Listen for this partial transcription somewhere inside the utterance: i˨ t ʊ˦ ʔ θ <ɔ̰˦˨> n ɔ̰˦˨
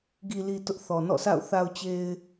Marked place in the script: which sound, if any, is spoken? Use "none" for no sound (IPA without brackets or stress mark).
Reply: ɔ˨